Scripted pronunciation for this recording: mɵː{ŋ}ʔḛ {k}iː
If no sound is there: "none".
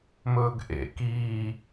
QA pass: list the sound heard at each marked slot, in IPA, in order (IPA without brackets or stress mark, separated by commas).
ɡ, k